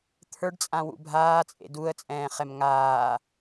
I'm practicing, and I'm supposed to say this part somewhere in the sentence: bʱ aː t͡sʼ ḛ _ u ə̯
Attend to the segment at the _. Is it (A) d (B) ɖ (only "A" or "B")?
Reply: A